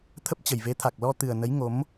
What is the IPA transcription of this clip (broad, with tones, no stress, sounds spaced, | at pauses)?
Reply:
t̪ʰ ə˦˥ p̚ t͡ɕ ə˨˩ j v e˨˦ t̪ʰ a˨˩ k̚ l ɔ˧ t̪ ɨ˨˩ ə̯ n ə˨˦ j ŋ o˨˦ m